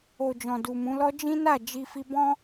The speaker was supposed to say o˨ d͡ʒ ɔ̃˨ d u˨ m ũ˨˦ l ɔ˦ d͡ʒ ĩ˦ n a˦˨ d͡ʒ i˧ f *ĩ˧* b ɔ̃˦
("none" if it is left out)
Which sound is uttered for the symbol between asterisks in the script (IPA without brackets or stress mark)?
i˧